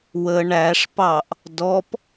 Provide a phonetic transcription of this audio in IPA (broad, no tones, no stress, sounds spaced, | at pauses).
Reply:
w ə ɳ æ ʂ p ɑ ʔ | d ɔ p